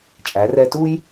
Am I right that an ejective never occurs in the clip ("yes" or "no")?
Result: no